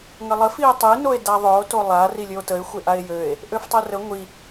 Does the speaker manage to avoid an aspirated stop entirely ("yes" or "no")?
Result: yes